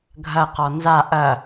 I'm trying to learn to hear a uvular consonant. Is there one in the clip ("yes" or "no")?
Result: yes